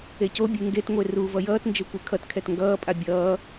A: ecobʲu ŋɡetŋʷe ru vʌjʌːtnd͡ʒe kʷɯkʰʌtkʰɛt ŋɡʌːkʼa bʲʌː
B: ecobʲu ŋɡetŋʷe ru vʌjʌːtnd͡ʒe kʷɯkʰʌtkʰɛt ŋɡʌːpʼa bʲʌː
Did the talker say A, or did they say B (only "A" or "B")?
B